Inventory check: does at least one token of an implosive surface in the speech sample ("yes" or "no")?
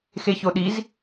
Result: yes